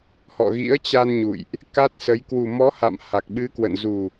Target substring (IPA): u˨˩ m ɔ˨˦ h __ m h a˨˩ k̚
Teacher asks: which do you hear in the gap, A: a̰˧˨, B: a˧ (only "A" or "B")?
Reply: A